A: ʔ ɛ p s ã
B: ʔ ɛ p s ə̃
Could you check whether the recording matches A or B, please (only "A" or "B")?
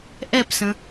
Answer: B